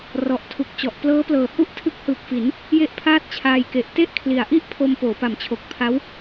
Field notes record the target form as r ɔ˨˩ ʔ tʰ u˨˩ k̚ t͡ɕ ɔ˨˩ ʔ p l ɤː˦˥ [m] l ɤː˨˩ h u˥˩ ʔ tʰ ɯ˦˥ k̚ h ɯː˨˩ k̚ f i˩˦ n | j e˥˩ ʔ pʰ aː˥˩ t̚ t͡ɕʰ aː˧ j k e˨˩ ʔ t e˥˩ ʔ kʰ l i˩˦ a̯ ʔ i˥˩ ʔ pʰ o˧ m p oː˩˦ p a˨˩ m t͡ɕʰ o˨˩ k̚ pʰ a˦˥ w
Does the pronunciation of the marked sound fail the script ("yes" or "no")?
yes